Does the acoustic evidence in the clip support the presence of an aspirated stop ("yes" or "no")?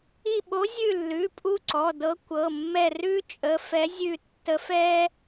no